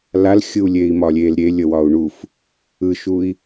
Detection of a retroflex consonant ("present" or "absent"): present